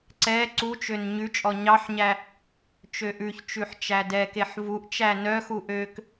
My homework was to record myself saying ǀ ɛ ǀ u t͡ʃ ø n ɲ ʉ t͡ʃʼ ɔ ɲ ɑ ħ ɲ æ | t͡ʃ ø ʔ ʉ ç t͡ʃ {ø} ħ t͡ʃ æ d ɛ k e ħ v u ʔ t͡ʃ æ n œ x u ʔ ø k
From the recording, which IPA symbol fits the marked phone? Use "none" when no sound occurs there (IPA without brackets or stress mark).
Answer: ʉ